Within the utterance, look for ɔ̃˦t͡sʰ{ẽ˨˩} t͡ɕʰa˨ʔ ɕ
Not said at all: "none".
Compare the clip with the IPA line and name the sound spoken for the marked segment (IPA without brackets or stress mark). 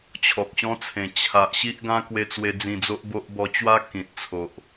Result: ẽ˨˩